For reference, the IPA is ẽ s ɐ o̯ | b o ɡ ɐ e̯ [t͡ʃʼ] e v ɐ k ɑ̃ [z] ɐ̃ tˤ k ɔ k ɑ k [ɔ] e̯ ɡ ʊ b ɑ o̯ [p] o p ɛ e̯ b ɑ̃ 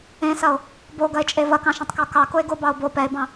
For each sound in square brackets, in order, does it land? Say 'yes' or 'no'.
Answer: yes, no, no, no

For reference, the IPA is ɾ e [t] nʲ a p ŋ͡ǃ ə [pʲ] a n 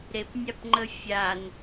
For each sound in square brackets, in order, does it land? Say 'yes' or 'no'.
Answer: no, no

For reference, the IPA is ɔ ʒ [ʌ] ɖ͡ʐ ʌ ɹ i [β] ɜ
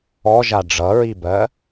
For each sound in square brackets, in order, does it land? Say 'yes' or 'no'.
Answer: no, no

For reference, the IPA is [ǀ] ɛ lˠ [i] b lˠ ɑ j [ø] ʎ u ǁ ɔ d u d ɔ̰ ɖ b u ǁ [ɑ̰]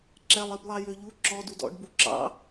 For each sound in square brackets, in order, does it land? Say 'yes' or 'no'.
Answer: no, yes, yes, yes

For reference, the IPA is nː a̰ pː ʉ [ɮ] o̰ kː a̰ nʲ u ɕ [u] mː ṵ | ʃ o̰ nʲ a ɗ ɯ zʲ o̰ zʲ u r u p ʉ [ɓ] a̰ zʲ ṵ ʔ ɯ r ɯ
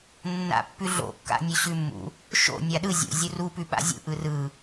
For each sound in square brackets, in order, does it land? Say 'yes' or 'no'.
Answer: yes, no, yes

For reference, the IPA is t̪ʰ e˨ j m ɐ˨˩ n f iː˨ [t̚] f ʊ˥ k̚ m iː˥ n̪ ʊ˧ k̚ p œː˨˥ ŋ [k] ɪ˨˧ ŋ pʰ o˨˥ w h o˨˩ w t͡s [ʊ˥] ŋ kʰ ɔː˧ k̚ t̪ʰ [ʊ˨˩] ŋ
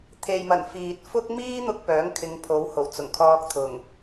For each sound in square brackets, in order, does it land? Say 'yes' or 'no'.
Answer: yes, no, no, yes

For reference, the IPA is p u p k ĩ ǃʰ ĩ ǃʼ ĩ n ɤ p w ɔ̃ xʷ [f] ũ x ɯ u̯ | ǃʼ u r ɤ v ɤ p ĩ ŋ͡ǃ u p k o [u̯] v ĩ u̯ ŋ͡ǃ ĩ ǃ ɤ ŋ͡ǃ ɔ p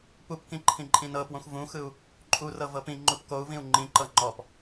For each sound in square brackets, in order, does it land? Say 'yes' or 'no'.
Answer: no, yes

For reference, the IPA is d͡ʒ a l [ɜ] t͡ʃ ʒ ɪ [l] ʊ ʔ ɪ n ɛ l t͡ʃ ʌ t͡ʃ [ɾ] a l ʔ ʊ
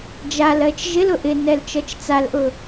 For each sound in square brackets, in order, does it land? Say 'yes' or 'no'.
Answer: yes, yes, no

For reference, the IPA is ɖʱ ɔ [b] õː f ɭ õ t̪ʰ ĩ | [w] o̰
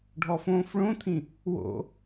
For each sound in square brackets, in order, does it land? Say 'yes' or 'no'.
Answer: no, yes

